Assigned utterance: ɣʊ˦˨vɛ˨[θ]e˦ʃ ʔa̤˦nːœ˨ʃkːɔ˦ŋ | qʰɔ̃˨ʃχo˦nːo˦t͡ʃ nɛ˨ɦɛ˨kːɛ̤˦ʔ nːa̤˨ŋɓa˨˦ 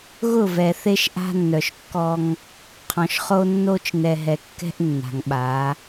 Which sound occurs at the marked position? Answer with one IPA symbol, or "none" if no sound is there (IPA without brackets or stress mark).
θ